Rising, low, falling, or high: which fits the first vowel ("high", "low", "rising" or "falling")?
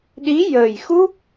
rising